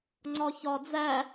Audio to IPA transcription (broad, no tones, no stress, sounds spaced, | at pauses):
ŋ͡ǀ ɒ ç ɒ d͡z æ